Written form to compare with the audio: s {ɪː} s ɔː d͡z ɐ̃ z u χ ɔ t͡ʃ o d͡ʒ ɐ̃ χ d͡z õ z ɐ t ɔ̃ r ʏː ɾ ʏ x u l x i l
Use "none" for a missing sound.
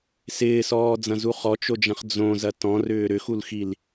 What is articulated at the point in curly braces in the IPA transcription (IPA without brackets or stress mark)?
ɪː